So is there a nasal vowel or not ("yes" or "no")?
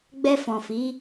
yes